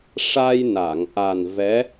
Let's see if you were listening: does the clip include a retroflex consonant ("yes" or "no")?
yes